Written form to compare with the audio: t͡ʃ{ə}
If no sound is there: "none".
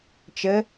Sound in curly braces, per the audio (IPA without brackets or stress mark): ə